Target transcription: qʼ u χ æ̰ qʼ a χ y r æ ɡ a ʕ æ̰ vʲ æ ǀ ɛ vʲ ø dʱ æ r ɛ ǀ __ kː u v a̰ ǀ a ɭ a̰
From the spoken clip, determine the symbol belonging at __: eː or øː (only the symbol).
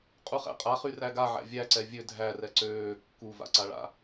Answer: øː